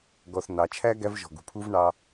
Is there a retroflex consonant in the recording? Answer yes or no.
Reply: yes